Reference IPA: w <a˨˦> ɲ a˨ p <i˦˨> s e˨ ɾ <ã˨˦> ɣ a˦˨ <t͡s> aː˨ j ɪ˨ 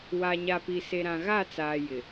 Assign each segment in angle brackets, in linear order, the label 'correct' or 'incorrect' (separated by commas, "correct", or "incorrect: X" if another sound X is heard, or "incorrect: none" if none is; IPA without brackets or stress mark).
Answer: incorrect: a˨, incorrect: i˨, incorrect: ã˨, correct